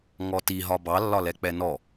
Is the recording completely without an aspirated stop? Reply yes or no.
yes